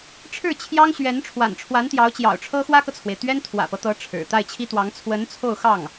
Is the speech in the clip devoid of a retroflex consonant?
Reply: no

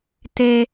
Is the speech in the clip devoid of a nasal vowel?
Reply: yes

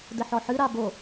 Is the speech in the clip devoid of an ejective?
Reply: yes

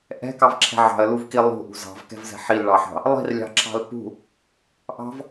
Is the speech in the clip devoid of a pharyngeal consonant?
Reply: no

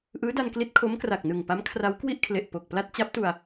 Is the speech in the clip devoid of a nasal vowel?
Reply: yes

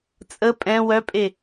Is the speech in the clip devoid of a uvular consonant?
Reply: yes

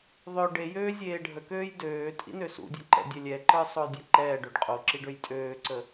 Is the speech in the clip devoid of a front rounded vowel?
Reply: no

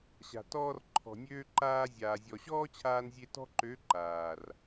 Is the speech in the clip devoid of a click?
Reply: no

